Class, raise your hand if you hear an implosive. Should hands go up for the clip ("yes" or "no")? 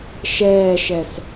no